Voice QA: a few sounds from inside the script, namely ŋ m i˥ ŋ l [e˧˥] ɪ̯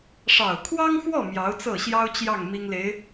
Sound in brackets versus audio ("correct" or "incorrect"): correct